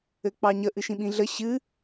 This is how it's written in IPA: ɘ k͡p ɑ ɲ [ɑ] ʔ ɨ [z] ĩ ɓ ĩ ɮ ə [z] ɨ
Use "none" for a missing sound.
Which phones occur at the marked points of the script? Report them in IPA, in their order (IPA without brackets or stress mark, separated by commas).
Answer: ə, ʃ, ɕ